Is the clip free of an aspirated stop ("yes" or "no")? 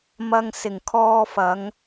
no